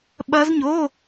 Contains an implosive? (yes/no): yes